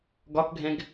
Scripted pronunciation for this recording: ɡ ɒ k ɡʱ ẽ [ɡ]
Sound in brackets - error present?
no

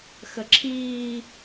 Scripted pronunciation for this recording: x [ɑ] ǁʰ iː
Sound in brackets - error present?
yes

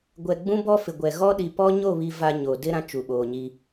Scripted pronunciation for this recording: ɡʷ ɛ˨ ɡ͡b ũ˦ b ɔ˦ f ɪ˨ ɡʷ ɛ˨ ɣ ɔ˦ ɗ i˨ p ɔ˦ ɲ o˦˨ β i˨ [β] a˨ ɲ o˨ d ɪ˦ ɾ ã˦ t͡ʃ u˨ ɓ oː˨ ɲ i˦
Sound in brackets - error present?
yes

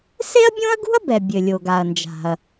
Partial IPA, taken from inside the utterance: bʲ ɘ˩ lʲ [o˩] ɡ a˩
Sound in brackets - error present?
no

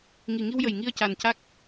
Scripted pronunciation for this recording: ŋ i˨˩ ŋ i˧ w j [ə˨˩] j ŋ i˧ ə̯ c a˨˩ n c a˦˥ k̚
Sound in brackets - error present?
no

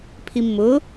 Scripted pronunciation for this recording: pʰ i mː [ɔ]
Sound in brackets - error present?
yes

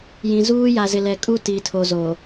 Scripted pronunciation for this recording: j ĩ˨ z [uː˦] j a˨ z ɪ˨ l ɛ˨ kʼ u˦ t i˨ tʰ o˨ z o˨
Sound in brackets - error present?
no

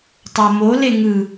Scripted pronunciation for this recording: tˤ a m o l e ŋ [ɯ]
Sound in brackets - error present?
no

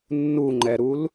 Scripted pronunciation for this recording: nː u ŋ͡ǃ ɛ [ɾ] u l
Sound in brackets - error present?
no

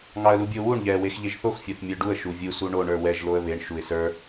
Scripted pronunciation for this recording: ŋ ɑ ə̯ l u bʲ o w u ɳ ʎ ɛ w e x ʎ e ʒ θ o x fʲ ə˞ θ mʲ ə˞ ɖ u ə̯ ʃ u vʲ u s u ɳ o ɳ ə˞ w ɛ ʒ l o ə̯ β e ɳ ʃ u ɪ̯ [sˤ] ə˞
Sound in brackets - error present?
yes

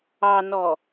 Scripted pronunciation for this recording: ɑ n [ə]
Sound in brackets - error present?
yes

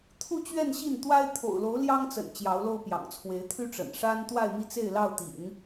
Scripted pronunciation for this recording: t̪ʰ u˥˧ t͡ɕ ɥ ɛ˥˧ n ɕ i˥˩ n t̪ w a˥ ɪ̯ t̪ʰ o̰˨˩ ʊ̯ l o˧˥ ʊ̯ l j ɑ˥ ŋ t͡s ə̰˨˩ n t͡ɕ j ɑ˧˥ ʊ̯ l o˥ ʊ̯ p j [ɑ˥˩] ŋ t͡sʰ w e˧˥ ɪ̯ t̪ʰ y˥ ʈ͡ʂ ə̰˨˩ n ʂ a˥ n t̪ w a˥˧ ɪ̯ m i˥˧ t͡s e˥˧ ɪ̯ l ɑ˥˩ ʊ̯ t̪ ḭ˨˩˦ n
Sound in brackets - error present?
yes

